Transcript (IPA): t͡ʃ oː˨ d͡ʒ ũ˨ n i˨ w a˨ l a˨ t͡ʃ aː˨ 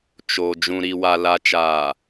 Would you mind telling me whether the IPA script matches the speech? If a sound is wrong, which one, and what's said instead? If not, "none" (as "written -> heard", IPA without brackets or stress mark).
n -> ɾ